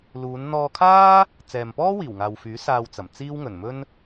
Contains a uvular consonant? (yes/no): no